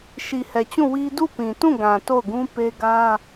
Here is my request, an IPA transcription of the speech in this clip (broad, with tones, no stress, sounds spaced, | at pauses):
ʃ i˨ h ɛ˨ t͡ɕ ũ˦˨ w i˦ d u˦˨ p ĩ˨ t ũ˦˨ ɡ ã˨ t o˦˨ ʊ̯ ɡ ũ˦ p e˦ ɡ ä˦